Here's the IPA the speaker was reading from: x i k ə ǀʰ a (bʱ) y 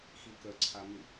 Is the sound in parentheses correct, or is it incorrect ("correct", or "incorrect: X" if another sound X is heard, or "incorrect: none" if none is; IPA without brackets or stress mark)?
incorrect: m